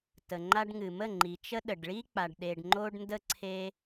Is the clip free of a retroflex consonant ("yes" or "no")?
no